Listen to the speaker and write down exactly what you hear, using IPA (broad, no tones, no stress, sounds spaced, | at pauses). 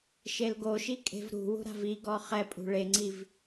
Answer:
ʃ e l ɡ o ʃ i kʼ e̤ v ɾ ṳ w ṳ ɾ a̤ v i ɡ ɔ χ ɛ pʼ ṳ ɭ e ŋ͡ǀ i v